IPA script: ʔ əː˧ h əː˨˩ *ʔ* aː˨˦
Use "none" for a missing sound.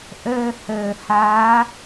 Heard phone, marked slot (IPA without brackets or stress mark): h